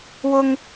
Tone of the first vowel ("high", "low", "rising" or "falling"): high